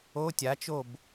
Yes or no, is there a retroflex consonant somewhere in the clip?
no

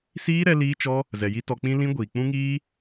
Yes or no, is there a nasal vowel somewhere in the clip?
yes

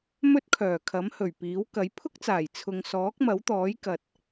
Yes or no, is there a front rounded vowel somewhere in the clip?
yes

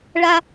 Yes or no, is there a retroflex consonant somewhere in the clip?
yes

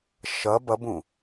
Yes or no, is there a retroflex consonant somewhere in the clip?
no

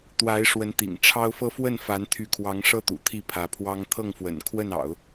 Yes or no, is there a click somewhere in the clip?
no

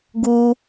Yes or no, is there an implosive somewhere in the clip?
no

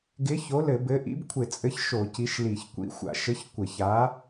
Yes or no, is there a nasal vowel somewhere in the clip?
no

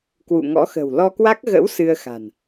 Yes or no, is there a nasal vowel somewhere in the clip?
no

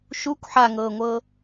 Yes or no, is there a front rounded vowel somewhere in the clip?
no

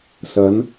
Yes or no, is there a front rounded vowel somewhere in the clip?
no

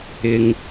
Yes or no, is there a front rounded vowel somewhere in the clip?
no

